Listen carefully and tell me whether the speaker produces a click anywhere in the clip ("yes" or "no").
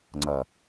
yes